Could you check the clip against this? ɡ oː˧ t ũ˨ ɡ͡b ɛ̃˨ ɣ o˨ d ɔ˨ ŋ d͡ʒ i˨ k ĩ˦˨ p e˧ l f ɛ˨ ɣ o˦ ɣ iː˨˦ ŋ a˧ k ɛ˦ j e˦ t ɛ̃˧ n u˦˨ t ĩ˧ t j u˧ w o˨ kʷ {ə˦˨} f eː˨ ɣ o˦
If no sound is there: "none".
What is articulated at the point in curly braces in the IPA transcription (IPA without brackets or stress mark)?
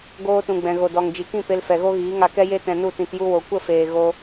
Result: ə˦˨